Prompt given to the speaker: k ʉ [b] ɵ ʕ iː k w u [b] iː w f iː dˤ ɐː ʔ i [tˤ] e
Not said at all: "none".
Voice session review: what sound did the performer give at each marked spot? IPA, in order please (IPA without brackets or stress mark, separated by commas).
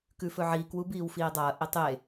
f, b, tˤ